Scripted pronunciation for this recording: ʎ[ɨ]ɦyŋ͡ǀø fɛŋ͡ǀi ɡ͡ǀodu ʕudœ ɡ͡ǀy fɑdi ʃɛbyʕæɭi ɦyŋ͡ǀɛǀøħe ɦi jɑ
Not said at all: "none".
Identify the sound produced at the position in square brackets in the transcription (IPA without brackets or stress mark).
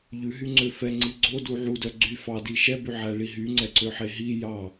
ʉ